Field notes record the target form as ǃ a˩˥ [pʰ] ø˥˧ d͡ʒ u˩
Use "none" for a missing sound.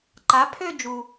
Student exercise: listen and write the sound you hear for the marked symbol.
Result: pʰ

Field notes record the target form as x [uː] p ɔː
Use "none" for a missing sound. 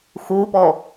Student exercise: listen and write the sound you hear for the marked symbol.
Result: uː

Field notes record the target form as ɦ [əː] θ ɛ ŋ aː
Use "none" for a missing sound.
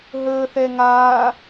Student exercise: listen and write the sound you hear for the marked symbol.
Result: əː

